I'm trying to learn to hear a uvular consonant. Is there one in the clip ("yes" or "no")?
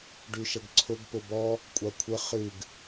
yes